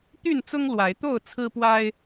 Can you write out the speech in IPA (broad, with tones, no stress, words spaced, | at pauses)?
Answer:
t̪y˥˨nt͡sʊ˦ŋ lwa˨˦ɪ̯t̪o˥˨ʊ̯ t͡sʰɹ̩˦pwa˦ɪ̯